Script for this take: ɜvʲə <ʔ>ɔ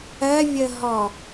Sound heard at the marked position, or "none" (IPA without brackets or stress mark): ɦ